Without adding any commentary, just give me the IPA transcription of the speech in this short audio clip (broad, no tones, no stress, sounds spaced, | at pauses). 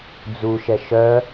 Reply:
d͡z u ʃ ɛ ʃ œ